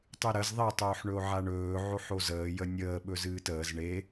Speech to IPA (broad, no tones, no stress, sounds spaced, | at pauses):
tˤ ɨ ɾ ə z ðˤ e tˤ oː ħ ɳ ɵ o̯ ʕ a ɳ ɵː ʕ o ħ o z əː j ə nʲ əː ɓ ɵ z ɨː t əː z ɳ e